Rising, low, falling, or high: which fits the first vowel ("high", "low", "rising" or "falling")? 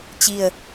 falling